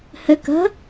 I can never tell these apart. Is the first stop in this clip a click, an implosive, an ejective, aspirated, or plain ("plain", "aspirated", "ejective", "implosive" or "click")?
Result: plain